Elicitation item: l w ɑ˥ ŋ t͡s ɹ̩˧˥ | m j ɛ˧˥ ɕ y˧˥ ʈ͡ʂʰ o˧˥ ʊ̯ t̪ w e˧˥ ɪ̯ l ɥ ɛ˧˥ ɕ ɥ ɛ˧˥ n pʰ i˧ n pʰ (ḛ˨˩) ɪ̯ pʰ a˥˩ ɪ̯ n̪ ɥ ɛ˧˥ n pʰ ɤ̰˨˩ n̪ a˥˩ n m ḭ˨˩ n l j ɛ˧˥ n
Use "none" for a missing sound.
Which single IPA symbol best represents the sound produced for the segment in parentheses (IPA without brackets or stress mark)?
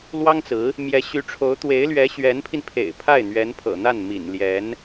ḛ˨˩